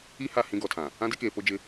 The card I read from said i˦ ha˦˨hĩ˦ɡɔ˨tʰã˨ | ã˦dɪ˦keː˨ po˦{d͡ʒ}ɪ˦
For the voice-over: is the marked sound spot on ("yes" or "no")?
yes